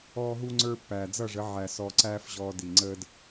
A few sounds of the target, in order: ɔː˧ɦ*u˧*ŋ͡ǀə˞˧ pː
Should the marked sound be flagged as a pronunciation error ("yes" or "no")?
no